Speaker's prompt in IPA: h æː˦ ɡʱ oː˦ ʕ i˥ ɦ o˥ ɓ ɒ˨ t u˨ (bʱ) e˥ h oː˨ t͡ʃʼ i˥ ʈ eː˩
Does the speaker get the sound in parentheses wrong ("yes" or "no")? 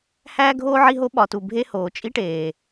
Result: no